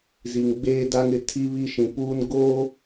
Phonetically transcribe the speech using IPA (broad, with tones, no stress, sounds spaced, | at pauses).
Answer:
z i˨ ŋ ɡ͡b eː˦ d a˦ ŋ ɪ˨˦ tʰ i˦ β i˦ ʃ ĩ˨ p uː˦ n ɡ oː˦